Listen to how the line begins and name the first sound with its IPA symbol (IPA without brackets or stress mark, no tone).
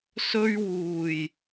s